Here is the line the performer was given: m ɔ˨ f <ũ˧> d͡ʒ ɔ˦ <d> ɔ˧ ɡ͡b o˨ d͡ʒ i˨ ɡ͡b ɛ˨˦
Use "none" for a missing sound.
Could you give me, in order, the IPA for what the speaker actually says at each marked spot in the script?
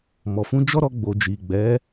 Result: ũ˧, ɾ

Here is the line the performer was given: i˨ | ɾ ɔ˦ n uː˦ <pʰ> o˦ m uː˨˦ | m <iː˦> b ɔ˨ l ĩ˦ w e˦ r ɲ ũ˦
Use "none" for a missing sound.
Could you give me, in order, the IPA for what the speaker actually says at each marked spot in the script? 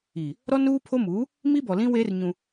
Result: pʰ, i˦

